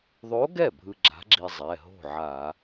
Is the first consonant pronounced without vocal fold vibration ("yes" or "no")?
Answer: no